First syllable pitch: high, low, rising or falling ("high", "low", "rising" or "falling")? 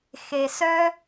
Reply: low